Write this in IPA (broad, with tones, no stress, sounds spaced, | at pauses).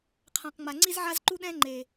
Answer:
qʰ ã˨ q ŋ͡m a˨ ŋ͡ǀ i˦ z ʕ a˦ z ǃ u˦ ɗ ɛ̃˦ ŋ͡ǃ e˨